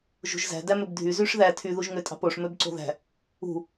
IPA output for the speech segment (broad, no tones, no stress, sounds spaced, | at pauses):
ʒ ṳ ʒ z æ̤ d æ m ø b dʱ y z y ʂ ð æ tʰ y ð u ʒ ŋ ø tʼ ɑ̤ p o ʂ m ø b ǀ o̤ ð æ̤ | ṳ